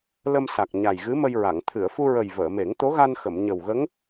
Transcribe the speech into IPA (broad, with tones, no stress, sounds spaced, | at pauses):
l ə˧ m s a˨˩ k̚ ɲ a˨˩ j ɣ ɨ˧˥ m ə˧ j ɹ a˨˩˨ ŋ t̪ʰ ɨ˨˩˨ ə̯ f u˧ ɹ ə˨˩ j v əː˨˩˨ m e˨˩˦ ŋ t̪ o˧˥ ɣ a˧ n x ə˨˩˨ m ɲ ə˨˩ w ɣ ə˧˥ ŋ